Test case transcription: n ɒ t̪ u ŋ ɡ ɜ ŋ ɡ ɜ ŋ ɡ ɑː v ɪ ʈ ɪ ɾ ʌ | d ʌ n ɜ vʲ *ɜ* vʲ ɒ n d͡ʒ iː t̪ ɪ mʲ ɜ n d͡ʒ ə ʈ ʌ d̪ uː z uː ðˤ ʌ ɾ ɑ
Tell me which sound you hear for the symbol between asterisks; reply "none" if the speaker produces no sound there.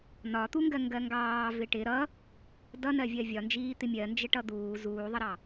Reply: ɜ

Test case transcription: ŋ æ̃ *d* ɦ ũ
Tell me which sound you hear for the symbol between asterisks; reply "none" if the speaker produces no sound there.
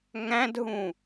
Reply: d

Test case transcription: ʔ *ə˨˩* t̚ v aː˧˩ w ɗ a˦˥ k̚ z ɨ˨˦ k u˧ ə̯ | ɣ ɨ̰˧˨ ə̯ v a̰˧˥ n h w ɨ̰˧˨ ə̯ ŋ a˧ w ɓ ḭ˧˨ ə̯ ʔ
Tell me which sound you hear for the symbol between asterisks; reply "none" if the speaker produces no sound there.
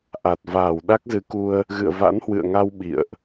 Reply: a˨˩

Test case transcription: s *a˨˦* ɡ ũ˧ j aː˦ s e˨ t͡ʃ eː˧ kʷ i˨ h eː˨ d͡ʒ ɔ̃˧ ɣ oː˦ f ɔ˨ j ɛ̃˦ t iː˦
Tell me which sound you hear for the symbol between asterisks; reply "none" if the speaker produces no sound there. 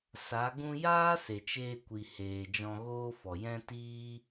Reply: a˨˦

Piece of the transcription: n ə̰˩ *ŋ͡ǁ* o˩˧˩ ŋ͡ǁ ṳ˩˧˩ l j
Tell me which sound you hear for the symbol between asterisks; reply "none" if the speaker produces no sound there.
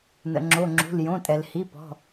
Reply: ŋ͡ǁ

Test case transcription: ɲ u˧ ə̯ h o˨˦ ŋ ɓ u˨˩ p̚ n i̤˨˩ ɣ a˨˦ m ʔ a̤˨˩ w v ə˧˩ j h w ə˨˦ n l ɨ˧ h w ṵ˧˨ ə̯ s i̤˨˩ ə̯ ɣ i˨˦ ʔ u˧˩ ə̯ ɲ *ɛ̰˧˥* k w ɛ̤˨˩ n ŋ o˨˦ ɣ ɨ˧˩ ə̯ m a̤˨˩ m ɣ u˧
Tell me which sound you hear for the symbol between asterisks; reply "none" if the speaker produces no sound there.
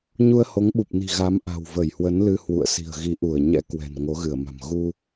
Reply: ɛ̰˧˥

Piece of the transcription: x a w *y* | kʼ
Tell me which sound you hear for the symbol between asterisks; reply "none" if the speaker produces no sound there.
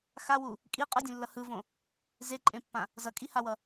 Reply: u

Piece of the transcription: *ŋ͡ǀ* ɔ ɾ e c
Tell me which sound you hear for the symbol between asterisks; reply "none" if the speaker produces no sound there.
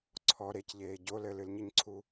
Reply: ǀʰ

